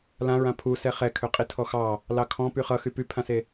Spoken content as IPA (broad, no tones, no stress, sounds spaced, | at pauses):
l ã ɹ ã pʰ u s ɛ χ ɛ kʰ ø qʼ i tʰ ɔ x ɑ | l ɑ kʰ ɔ̃ p y χ ʌ x y p y pʰ ã s e